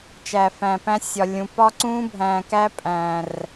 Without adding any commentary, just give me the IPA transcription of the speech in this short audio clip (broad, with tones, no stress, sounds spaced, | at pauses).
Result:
t͡ʃ æ˨ f æ̃˨ p æ̃˦ sʲ ɒ˨ lʲ ũ˨ p ɒ˦ ǀ ũː˦ bʱ æ̃ː˨ k æ˦ pʼ æ̃ː˨ r